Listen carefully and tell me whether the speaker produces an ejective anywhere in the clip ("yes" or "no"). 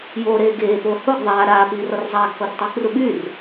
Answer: no